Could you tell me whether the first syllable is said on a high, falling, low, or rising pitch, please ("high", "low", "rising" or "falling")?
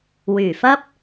low